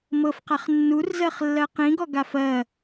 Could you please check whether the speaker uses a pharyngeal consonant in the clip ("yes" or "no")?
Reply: no